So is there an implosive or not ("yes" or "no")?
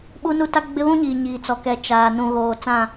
yes